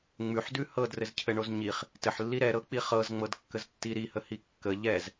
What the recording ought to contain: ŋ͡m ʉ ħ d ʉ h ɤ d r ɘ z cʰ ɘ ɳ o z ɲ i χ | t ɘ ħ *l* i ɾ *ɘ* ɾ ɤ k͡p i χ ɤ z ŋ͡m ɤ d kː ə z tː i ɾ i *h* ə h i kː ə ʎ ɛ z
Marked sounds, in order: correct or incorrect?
incorrect: lː, incorrect: ɛ, correct

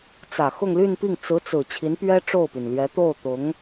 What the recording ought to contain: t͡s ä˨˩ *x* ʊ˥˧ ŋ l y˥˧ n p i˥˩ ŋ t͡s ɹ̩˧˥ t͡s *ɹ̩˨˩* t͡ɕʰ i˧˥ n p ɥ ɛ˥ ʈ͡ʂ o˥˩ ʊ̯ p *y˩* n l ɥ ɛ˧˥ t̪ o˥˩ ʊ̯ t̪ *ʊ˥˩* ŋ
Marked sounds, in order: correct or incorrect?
correct, correct, correct, incorrect: ʊ˧˥

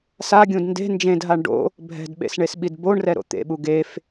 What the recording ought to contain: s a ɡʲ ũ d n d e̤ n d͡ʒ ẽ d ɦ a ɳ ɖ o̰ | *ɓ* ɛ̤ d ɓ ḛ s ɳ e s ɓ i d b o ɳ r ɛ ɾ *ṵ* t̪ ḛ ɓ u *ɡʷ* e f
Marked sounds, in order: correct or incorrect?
incorrect: bʱ, incorrect: o̰, incorrect: ɡ

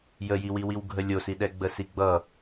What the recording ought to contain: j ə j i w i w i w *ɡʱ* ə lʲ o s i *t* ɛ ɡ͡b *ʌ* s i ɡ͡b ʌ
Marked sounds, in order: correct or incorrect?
correct, incorrect: ɗ, incorrect: ə

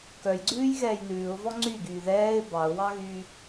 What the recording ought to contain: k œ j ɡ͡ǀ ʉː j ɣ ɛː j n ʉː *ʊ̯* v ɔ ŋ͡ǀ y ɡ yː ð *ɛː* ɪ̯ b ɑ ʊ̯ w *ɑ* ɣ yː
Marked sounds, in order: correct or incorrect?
correct, correct, correct

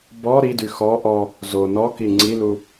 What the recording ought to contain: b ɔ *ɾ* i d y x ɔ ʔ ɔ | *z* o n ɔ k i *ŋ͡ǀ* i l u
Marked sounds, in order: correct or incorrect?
correct, correct, correct

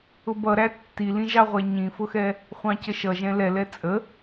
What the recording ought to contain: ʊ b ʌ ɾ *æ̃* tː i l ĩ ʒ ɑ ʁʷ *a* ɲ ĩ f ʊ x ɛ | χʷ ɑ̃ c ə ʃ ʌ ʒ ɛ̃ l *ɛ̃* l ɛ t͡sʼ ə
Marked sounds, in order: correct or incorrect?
incorrect: æ, incorrect: æ, incorrect: ɛ

